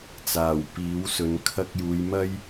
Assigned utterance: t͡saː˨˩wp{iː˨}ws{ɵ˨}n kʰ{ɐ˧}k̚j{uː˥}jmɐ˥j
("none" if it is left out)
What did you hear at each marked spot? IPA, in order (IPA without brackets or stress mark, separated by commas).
iː˨˥, ɵ˨˧, ɐ˧, uː˨˧